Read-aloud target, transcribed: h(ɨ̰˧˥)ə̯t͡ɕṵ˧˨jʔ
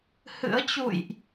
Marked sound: correct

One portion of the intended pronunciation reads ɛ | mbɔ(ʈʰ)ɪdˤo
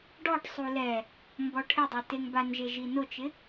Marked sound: correct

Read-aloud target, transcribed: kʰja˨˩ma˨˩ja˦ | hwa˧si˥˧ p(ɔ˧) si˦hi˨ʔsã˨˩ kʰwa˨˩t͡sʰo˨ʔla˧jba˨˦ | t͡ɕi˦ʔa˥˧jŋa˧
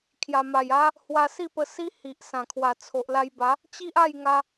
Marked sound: incorrect: ə˧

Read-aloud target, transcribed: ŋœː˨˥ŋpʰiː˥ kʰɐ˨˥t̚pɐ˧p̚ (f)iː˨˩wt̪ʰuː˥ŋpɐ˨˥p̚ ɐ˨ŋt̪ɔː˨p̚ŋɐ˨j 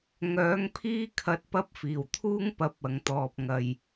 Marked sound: correct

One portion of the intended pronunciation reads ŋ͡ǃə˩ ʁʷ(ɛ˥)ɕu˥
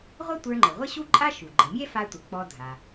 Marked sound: incorrect: ɘ˥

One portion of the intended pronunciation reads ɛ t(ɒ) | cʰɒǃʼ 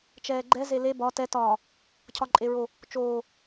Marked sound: incorrect: ɒː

